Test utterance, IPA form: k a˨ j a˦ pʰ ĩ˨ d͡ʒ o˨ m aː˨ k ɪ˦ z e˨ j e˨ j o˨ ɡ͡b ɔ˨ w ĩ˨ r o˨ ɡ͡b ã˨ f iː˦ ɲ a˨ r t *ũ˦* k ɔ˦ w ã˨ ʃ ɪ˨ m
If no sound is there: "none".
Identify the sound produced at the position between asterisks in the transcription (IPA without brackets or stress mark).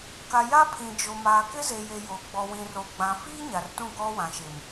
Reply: ũ˦˨